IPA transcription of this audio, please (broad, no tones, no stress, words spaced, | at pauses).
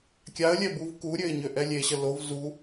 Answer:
kʲaə̯lʲɛ buvkuɾʲøɪ̯ ɲøʔɛlʲeɕə lov zu